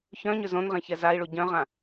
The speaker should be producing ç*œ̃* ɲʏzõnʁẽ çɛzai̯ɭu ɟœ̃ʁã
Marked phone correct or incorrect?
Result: correct